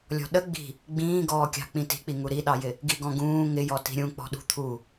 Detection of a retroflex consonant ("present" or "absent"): absent